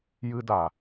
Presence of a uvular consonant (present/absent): absent